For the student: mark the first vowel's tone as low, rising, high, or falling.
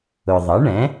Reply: low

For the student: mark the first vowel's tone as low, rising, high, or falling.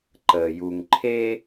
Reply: low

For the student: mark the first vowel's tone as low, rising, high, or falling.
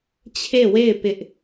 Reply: falling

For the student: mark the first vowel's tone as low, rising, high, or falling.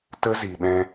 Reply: high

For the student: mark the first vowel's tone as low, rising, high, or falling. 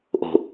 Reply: low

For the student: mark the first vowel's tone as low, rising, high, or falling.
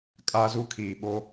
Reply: high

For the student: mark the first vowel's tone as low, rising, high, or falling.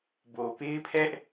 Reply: low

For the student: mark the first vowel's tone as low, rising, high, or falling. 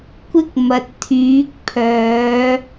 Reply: high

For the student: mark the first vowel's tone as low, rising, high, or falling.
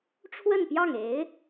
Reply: falling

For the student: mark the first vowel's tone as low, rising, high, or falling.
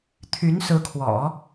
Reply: rising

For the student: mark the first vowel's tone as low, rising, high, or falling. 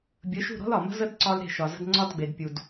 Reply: rising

